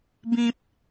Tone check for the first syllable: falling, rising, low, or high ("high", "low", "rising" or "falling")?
low